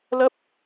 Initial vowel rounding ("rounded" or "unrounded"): unrounded